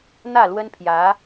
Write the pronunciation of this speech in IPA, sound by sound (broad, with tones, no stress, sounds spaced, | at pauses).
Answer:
n̪ ä˥˩ l w ə˥ n pʰ j ä˧˥